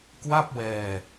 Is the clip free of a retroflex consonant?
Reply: yes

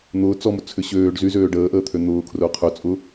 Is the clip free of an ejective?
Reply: no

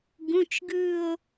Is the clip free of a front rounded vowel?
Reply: yes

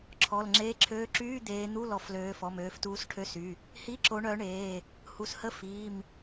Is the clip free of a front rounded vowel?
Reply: no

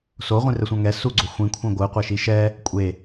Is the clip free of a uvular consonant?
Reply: no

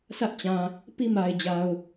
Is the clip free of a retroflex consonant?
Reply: yes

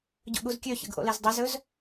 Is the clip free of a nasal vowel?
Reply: yes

